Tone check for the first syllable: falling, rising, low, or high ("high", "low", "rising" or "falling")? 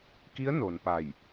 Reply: rising